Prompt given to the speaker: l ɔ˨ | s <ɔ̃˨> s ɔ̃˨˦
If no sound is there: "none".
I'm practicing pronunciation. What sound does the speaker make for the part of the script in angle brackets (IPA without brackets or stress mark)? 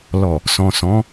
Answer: ɔ̃˨